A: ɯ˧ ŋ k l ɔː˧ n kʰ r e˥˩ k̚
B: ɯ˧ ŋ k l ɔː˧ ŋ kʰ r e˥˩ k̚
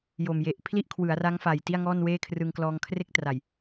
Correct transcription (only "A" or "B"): B